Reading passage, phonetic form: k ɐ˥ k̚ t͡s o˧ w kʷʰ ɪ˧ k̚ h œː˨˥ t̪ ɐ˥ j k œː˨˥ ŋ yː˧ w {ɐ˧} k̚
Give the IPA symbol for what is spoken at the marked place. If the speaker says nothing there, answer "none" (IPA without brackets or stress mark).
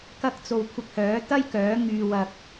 ɐ˧